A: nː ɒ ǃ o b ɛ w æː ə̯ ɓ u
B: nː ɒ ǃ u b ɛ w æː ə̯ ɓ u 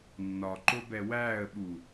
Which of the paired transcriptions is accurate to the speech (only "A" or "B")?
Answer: A